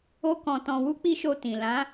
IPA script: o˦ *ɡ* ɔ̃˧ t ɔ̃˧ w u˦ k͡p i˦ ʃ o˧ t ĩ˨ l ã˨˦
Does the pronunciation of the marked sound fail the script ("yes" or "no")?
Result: yes